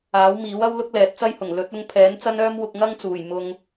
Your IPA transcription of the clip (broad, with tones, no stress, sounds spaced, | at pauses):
aː˨˥ w m iː˨˥ w ɐ˥ w l ʊ˥ k̚ l ɛː˨˥ t̚ t͡s ɐ˥ j h ʊ˨˩ ŋ l ɵ˨˥ t̚ ʊ˧ ŋ pʰ ɛː˨˥ n t͡s ɐ˥ n œː˥ m w ʊ˧ k̚ ŋ ɐ˥ ŋ t͡s uː˨˩ j m ʊ˨ ŋ